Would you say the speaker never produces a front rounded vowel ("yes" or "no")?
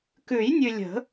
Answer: yes